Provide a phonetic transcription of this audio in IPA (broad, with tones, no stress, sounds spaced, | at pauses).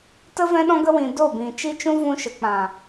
t ə˦ v ɛ̃˦ ɗ ɔ̃˦ ɡ ə˦ w ĩ˧ d o˦˨ b ĩ˨ t͡ʃ i˦ t͡ʃ ũ˦ v ũ˧ ʃ ə˨ k͡p ã˨